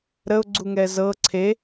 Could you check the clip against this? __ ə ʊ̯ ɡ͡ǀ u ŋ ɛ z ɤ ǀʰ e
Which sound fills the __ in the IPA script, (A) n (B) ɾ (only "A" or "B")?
B